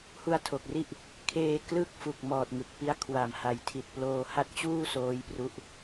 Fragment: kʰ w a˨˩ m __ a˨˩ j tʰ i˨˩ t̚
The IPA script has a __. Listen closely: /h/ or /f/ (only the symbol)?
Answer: h